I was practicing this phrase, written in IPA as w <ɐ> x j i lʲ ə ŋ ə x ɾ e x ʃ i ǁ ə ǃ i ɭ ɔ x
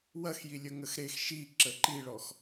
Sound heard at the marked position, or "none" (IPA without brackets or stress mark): ɐ